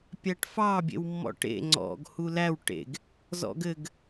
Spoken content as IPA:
pʲ æ ʈ f ɑ bʲ ḛ w mː ɔ̰ ʈ ḛ ŋ͡ǀ ɔ̰ ɡ h u l æ w ʈ ḛ ɡ | z ɔ̰ ɡ ɘ ɡ

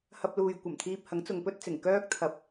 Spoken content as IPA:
h ɐ˧ p̚ l uː˨ j kʷ ɐ˨˩ m t̪ʰ iː˧ p̚ h ɐ˨˥ ŋ t͡s ʊ˨ ŋ p ɵ˥ t̚ t͡s ɪ˨˩ ŋ k œː˥ k̚ t̪ʰ ɐ˧ p̚

